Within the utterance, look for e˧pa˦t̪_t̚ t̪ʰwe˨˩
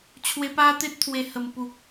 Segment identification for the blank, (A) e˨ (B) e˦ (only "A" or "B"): B